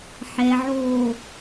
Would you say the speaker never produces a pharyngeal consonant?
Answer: no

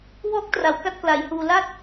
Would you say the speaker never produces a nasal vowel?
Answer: yes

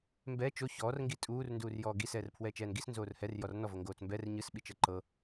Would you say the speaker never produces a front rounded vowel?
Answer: yes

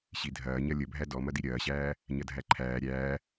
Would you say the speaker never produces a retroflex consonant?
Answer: yes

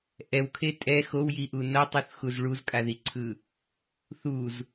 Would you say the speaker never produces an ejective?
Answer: no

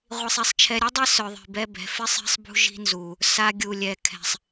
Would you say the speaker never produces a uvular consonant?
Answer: no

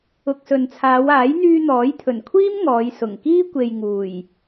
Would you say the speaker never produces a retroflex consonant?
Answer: yes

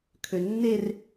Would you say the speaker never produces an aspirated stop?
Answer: no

